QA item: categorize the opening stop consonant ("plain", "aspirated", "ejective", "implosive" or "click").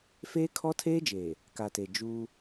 aspirated